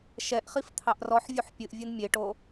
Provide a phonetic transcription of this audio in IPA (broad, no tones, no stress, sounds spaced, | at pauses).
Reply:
ʃ ɛ ʔ χ i f t̪ʰ ɑ ʔ r ɔ ħ vʲ u ħ pʲ ɨ ʔ vʲ ɨ n mʲ e ʈ o